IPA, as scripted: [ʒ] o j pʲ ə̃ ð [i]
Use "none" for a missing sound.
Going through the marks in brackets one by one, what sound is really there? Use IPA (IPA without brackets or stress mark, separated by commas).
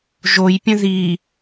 ʒ, i